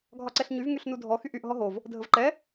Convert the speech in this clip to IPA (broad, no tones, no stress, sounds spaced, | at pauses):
ɡʱ ɒ ǀ ɛ ɬ ɲ y v ŋ y ɬ n u dʱ ɔ x y ʔ y ʔ ɦ ɔ ɦ o v | dʱ ə v ǃ ɛ